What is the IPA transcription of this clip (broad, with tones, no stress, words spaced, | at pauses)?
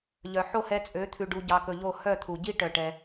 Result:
ʎœ˨ħo˦˨hɛ˧t͡sʼø˨˦ t̪ʰʉ˨ ɖu˧ɟɑ˧kɵ˧ ʎo˦˨ hœ˦˨t̪ʰu˨ɟi˦ ʈœ˧ʈɛ˧